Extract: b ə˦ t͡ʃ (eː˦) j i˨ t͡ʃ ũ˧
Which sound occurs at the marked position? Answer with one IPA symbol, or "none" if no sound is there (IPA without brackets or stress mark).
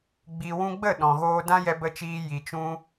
iː˦